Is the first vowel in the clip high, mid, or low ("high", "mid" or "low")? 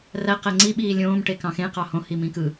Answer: low